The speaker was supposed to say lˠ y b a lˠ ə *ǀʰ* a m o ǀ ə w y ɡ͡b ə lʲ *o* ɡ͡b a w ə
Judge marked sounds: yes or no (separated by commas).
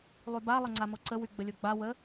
no, yes